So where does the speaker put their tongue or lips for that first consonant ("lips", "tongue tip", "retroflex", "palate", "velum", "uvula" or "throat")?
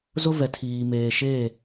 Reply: tongue tip